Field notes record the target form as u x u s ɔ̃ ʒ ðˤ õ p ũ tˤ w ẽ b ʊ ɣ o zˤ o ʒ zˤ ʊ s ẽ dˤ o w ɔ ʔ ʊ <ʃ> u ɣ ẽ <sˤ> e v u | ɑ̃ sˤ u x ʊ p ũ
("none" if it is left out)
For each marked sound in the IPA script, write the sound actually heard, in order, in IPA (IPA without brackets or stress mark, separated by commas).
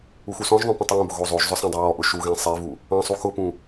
ʃ, sˤ